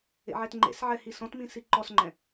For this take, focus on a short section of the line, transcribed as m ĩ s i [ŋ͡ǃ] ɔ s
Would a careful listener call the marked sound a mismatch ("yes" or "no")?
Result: yes